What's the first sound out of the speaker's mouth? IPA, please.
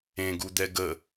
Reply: ẽ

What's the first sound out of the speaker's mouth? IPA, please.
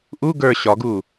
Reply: ʔ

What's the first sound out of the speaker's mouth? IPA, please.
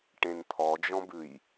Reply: ʈ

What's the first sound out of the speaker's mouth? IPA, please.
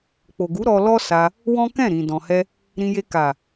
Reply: k͡p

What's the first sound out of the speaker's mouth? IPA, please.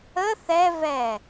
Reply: ə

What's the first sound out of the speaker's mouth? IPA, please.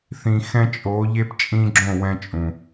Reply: θ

